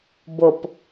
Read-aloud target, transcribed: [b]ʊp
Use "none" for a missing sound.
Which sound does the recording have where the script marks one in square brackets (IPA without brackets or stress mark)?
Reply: b